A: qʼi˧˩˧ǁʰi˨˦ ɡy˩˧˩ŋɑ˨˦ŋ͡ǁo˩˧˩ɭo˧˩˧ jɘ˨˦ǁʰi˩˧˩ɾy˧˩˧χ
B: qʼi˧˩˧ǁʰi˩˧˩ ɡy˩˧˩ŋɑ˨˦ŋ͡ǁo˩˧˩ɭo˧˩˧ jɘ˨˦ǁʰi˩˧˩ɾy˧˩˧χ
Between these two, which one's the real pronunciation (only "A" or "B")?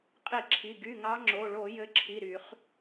B